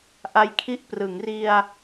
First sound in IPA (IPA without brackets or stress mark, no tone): ʔ